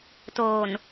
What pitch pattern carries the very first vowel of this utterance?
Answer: low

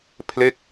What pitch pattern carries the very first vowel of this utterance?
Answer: falling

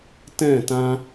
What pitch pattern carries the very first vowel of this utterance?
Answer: falling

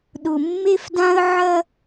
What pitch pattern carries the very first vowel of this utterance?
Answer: low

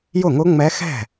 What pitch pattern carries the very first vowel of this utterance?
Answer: falling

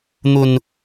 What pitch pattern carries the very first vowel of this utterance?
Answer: high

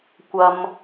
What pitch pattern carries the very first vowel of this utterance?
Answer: high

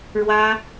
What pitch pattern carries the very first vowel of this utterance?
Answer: high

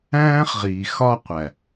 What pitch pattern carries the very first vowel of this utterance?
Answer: high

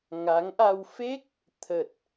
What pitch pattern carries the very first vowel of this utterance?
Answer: rising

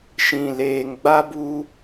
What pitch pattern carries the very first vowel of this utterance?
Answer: low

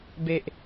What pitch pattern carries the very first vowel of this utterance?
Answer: low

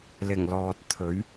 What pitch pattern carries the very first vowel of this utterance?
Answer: low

